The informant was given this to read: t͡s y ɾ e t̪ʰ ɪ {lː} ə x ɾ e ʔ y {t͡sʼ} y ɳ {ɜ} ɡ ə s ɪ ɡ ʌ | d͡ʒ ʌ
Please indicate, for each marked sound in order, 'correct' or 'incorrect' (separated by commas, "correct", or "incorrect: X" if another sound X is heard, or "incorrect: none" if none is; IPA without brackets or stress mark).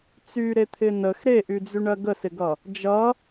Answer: incorrect: n, incorrect: d͡z, correct